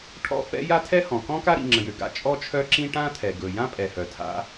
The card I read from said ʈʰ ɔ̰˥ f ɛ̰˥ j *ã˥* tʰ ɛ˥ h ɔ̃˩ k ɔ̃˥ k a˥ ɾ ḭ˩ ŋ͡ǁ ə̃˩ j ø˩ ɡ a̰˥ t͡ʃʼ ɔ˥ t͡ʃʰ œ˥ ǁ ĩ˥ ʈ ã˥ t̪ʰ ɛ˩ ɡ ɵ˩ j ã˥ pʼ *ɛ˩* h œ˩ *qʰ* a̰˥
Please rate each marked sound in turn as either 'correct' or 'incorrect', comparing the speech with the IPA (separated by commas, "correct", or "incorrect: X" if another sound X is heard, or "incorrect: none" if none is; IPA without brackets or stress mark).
incorrect: a˥, correct, incorrect: tʰ